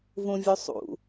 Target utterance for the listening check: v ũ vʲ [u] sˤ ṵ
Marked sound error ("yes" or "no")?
no